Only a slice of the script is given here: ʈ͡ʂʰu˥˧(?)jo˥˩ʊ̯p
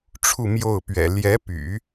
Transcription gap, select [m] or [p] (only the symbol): m